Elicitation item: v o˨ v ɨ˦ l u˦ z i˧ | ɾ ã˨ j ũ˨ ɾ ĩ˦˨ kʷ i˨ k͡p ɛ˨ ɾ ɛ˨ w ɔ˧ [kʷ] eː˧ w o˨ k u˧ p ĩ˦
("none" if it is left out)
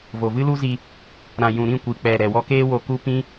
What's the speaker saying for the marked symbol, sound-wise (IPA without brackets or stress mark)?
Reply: k